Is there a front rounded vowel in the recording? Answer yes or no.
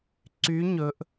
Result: yes